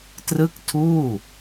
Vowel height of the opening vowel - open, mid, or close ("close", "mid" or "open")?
close